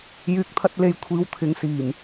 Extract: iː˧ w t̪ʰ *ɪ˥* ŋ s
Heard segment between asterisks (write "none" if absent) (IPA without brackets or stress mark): ɪ˨˧